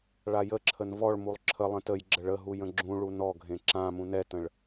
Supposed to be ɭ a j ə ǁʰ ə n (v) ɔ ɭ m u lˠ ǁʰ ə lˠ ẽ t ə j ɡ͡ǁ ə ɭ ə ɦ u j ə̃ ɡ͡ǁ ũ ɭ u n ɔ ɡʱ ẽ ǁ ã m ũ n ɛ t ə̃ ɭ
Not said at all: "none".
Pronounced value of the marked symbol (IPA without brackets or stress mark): v